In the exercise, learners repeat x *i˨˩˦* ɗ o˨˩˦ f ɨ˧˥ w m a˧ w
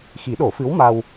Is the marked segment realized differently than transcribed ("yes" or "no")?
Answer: no